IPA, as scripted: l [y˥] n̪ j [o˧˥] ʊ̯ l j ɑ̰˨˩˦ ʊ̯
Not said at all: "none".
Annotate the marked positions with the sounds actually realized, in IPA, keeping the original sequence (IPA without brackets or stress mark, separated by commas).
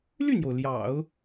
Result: y˥˩, o˩